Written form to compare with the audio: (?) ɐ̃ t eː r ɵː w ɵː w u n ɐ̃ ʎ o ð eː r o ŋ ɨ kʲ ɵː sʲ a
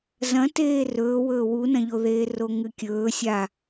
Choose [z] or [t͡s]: z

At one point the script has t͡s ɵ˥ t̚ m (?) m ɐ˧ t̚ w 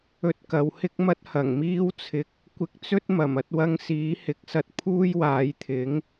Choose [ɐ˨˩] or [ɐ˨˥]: ɐ˨˩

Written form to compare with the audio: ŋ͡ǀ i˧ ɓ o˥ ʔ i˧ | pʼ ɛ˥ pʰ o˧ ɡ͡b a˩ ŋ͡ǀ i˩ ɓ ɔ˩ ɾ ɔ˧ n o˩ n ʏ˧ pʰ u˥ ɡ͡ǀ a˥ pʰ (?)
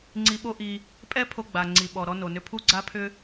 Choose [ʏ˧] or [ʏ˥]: ʏ˥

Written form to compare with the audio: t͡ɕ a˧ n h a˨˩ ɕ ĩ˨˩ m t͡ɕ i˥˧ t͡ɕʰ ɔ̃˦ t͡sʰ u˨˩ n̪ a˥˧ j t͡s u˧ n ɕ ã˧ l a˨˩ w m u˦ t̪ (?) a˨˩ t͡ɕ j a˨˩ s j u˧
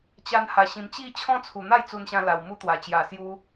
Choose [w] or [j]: w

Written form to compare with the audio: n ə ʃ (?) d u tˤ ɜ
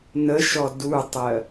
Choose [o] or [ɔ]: ɔ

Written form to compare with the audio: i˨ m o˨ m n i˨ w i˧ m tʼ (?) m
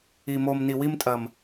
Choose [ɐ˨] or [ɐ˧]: ɐ˨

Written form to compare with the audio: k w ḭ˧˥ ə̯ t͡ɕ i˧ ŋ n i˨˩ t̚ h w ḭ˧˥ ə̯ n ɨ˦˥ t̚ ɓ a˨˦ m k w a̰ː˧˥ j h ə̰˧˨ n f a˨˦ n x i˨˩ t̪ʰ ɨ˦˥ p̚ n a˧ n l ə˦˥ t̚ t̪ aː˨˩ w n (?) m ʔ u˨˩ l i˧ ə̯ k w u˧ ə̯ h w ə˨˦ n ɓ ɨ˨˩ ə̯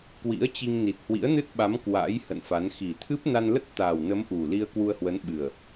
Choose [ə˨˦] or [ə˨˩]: ə˨˦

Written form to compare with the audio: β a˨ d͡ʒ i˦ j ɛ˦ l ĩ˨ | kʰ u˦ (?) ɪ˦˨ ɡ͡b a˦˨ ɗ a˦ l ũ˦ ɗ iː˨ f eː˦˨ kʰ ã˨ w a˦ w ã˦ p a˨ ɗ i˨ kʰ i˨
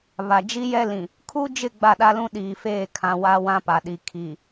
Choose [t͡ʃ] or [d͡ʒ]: d͡ʒ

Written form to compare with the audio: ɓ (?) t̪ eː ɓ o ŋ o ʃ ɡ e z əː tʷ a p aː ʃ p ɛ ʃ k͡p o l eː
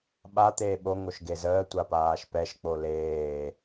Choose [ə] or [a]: a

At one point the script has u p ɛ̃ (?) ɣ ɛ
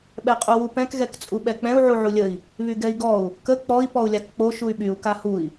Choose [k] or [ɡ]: k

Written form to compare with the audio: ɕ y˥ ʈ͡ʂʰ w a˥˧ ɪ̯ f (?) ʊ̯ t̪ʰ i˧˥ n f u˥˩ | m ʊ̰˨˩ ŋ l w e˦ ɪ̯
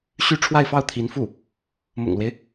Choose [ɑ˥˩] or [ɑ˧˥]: ɑ˥˩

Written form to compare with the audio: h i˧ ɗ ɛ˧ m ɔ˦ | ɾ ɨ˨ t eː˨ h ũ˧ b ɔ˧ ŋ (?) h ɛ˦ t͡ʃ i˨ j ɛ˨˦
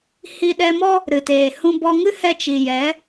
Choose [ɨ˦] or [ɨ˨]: ɨ˦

